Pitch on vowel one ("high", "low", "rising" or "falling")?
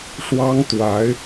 high